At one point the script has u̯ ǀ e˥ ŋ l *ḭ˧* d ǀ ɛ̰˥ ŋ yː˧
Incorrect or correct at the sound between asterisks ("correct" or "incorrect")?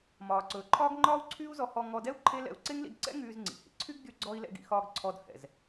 correct